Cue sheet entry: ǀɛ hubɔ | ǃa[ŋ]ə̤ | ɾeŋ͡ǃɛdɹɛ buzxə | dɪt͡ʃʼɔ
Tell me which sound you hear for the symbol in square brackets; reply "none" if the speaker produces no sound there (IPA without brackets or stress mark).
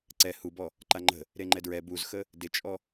ŋ͡ǃ